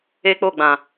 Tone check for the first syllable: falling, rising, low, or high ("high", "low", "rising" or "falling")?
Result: high